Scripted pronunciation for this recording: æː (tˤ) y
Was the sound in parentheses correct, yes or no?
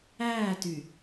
no